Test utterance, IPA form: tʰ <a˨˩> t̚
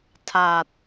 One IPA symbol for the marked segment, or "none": a˨˩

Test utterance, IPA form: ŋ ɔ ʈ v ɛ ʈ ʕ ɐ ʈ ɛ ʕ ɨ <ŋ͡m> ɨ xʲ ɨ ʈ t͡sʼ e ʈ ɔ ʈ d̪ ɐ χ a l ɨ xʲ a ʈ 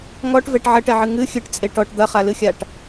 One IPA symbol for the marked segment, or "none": ŋ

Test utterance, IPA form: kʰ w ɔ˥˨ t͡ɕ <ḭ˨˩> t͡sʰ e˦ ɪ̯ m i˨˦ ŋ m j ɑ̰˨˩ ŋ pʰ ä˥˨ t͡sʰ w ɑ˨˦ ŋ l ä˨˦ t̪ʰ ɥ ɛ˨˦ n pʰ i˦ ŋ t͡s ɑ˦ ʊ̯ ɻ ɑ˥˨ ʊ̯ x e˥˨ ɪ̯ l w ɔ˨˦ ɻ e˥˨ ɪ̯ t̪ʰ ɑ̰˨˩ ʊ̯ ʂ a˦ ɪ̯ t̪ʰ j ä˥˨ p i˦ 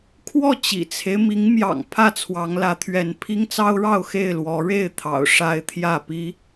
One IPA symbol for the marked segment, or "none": ḭ˨˩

